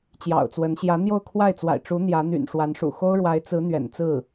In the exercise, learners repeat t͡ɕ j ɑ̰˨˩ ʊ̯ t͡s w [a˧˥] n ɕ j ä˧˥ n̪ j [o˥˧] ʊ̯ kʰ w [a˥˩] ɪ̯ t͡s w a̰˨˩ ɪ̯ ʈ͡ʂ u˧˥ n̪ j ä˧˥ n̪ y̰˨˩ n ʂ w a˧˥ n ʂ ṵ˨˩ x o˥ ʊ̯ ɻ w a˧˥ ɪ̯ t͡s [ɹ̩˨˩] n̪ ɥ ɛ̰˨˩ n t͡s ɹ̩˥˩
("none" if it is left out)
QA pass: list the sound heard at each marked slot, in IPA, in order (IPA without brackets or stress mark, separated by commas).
ə˧˥, o˥˧, a˥˩, ɹ̩˧˥